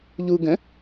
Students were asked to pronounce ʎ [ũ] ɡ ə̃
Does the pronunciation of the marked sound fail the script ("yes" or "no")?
yes